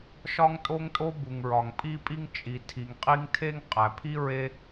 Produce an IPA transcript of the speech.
ʃɒ˥ŋtʼo˥ŋtʼo˥ bu˩ŋɹɒ˩ŋpʼi˥pʼi˥ŋ t͡ʃʼi˩ tʰi˩ŋqʼi˥ŋ tʰe˥ŋ qʼæ˩pʰi˥ ɹe˥

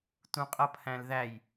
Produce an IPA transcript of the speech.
tũqʼʌpʰæ̃lðæj

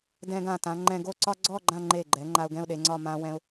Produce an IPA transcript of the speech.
dɛ̃˧ɡã˧˩tã˩˧ ŋ͡ǃɛ̃˧ɡo˥ǀɒ˥ ɡ͡ǀɔ˥˧ ɡ͡ǃã˥˧ŋ͡ǃe˧˩ɡ͡ǃɛ˩˧ ŋ͡ǃa˧ʊ̯ɡɛ̃˥˧ʊ̯ɗe˩˧ŋ͡ǀɒ˥˧ mã˥wɛ̃˥ʊ̯

